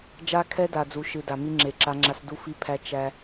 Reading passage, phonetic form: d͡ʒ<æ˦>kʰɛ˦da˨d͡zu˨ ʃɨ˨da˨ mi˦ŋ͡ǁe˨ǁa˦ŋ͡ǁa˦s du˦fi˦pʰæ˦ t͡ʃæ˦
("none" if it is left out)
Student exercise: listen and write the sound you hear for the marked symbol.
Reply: a˦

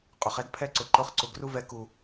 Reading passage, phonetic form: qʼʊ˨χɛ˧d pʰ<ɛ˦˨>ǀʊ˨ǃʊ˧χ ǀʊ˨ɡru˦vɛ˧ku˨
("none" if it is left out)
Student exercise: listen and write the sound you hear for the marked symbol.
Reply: ɛ˦˨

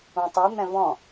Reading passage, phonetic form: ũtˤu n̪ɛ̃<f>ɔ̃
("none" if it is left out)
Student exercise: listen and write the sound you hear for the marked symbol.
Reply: v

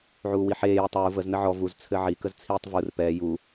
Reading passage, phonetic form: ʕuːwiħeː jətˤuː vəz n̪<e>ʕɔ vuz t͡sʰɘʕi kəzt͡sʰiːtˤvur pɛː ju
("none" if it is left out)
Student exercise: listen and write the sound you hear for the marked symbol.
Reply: ɘ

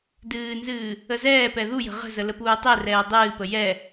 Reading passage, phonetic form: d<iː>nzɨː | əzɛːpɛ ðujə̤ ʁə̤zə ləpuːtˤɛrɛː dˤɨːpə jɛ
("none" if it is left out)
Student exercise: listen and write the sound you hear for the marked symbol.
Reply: ɨː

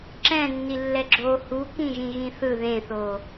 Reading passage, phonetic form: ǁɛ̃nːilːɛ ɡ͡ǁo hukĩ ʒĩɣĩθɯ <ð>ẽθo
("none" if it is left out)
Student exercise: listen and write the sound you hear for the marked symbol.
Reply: ð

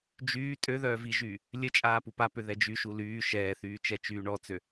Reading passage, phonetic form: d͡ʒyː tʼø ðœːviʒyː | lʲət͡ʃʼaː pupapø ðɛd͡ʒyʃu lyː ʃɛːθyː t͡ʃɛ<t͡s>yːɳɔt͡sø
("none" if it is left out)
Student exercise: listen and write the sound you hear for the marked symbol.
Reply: t͡ʃ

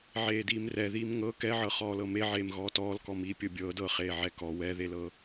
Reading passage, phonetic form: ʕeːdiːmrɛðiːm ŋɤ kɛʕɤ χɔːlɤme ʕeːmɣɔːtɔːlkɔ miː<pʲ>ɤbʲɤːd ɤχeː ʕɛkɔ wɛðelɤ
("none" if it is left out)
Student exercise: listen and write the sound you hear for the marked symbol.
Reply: pʲ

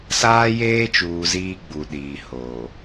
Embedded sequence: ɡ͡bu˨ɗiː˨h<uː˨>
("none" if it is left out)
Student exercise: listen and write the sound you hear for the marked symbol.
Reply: oː˨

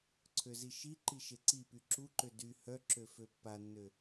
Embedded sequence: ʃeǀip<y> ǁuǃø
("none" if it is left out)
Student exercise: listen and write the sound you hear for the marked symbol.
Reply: y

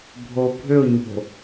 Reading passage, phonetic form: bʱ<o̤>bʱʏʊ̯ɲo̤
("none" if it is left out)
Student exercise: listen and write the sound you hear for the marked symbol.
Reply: o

